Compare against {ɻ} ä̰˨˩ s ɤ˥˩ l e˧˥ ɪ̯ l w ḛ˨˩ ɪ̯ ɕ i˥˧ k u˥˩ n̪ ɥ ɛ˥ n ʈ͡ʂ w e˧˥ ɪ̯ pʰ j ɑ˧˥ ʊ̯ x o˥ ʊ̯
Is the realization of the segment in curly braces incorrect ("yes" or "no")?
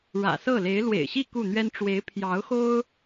no